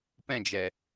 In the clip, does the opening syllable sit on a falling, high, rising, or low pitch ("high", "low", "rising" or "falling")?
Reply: falling